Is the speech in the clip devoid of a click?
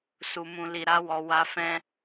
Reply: yes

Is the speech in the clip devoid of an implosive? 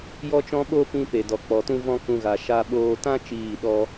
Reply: no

